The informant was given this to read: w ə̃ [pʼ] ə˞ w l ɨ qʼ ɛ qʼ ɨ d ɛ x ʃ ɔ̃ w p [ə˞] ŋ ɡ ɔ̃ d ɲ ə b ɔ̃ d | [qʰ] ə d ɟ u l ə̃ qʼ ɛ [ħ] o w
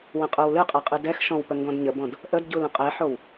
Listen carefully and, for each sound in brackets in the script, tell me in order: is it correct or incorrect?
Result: incorrect, incorrect, incorrect, correct

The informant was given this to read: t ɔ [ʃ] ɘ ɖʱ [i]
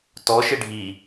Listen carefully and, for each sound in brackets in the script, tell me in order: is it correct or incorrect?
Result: correct, correct

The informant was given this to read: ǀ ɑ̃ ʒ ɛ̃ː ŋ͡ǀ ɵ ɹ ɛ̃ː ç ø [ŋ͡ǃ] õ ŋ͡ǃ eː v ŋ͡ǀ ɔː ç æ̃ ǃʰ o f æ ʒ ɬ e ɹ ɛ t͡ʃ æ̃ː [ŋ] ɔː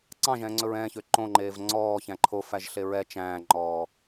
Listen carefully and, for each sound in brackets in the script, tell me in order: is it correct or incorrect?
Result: incorrect, incorrect

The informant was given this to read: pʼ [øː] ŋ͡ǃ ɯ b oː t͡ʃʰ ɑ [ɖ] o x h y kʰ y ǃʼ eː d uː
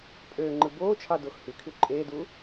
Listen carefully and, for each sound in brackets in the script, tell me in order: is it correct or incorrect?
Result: correct, incorrect

